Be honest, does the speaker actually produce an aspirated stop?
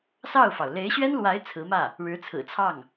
yes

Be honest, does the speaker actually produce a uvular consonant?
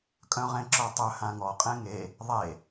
yes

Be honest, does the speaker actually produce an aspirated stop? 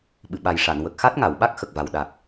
no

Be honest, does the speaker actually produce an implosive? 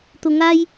no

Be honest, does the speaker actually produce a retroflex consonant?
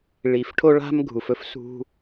yes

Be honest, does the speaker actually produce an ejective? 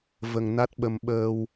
no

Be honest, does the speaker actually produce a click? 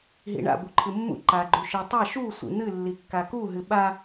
yes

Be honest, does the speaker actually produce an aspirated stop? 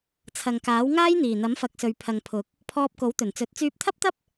yes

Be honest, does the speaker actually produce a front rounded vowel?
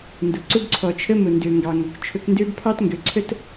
yes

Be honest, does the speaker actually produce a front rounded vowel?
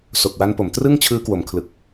no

